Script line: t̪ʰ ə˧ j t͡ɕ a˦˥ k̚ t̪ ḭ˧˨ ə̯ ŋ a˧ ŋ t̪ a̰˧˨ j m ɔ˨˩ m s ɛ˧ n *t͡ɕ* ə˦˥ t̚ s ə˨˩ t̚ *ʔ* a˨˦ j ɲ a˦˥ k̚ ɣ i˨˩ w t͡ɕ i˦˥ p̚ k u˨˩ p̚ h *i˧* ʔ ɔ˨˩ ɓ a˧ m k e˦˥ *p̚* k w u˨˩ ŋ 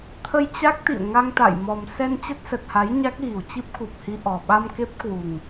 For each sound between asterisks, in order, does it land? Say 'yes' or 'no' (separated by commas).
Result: yes, no, yes, yes